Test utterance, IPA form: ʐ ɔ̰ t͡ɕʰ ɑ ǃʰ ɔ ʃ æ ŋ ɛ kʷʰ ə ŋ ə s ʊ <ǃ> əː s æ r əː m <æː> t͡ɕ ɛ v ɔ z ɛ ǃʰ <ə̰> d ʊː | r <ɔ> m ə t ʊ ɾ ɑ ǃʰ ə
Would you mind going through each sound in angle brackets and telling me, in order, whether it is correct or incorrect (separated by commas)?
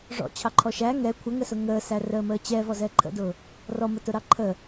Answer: incorrect, incorrect, correct, correct